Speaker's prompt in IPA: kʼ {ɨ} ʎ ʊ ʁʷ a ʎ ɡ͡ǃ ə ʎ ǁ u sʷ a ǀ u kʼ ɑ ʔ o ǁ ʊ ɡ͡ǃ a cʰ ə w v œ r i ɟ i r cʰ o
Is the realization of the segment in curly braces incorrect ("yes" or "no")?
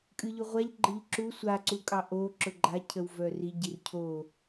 no